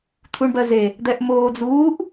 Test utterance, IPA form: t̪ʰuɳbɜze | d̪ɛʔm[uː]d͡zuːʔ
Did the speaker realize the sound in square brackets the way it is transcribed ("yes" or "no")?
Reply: no